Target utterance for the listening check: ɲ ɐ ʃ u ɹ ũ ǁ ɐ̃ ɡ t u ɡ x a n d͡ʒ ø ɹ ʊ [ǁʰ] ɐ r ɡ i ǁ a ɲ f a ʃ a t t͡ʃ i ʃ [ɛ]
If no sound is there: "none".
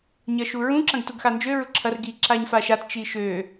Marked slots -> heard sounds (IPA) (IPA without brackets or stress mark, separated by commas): ǁʰ, ø